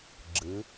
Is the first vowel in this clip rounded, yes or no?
no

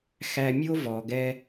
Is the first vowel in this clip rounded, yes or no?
no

